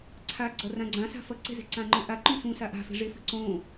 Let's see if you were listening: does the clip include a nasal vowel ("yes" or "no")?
yes